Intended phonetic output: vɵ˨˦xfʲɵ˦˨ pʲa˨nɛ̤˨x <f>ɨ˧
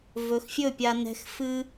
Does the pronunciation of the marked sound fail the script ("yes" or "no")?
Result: no